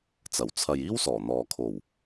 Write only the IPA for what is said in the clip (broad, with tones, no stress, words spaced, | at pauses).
t͡sɐ˨˩wt͡sʰɐ˨jiː˥w sɔː˨˩n̪ɔː˨ kʰo˨˩w